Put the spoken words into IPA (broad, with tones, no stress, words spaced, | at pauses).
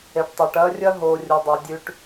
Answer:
e˨ʈtˤa˨ʈɐː˦ rʲɐ˦ɦoː˨ rʲo˨dˤe˨ dʲʉ˨ʈ